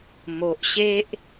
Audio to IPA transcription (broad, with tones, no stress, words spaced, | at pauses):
mo˨ʔɕe˦ʔ